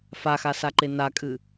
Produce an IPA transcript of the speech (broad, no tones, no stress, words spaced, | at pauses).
faxasaǃe nakʼɨ